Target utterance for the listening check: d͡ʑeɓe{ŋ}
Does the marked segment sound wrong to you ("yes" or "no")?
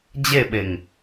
no